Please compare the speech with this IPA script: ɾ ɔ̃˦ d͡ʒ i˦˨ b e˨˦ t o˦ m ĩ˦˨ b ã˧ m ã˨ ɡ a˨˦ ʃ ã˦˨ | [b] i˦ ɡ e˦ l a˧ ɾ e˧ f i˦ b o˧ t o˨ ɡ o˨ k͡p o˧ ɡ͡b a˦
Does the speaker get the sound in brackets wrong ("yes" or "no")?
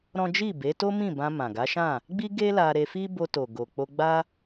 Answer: yes